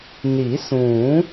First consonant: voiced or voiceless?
voiced